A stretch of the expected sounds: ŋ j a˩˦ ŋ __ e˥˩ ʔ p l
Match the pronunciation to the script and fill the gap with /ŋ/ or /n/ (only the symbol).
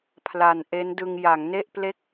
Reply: n